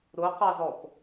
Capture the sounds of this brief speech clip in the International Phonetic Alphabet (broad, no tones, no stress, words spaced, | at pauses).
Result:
ɾʊqɑzɔp